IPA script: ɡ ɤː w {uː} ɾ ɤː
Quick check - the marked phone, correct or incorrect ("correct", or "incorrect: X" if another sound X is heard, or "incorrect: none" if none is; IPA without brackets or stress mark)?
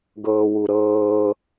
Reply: incorrect: u